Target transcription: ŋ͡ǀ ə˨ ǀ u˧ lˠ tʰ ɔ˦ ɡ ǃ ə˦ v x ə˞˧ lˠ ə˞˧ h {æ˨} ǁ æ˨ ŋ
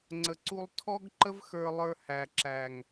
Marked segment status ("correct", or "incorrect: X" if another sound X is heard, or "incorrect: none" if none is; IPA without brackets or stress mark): correct